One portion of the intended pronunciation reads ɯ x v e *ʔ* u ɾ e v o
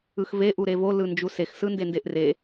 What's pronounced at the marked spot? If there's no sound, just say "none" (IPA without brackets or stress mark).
ʔ